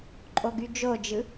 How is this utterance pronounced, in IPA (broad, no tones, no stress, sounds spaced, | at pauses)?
ǃʼ o ɡ y d͡ʒ o d͡ʒ ɯ